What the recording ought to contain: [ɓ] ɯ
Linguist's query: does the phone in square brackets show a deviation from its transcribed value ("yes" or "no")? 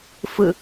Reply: yes